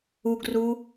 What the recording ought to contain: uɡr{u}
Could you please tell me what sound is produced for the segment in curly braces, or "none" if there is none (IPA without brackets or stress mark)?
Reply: u